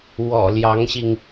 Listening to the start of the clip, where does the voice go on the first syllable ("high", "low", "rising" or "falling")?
low